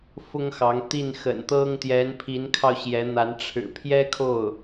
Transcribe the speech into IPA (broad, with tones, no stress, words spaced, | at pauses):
fʊ˥ŋxɑ˧˥ŋt̪i˥˩n xə̰˨˩nt̪ɤ˥ŋ t̪jɛ˧˥npʰi˧˥nkʰɑ˧ʊ̯ ɕjɛ˧˥n̪a˧˥n ʈ͡ʂʰɻ̩˨˩pʰjɛ˥kʰo˥˩ʊ̯